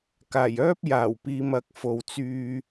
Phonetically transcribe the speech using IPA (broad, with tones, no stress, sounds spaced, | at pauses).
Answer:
k aː˨˩ j œː˥ p̚ j aː˨˩ w p iː˨ m ɐ˨ k̚ f o˨ w t͡s yː˧